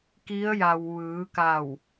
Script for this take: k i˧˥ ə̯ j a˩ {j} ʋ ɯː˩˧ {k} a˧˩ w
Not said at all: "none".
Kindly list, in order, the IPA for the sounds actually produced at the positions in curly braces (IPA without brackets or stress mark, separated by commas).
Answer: w, k